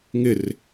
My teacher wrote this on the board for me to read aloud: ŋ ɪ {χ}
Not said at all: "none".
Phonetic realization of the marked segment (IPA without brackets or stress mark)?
r